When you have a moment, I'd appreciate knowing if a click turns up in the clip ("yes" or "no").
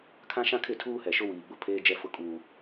no